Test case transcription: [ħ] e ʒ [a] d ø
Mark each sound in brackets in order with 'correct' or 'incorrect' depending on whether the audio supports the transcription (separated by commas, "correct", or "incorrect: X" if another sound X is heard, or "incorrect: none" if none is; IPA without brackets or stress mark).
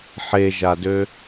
correct, correct